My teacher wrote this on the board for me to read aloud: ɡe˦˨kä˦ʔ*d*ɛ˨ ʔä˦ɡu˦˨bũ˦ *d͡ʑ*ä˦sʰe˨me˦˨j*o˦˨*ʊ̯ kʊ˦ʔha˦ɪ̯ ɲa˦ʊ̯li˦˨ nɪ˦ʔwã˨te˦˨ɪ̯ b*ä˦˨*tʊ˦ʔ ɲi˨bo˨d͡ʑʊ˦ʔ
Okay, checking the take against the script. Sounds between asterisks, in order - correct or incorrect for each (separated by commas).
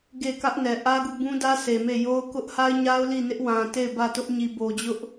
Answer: incorrect, incorrect, incorrect, correct